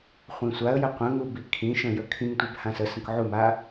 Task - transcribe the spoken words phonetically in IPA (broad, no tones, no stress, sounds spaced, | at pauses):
χʷ ĩ sʷ a ə̯ j ə qʷ ə̃ ŋ u b i kʰ ĩ ʃ ə̃ j ə kʰ ĩ ŋ tʷ e b h ã s ə s ə̃ k ʕ u m a